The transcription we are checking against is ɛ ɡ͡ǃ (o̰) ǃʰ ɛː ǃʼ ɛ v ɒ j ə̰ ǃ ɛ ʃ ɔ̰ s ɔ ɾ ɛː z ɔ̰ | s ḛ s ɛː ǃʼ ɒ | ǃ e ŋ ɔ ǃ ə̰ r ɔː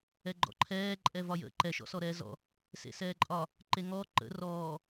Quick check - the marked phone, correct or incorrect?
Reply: incorrect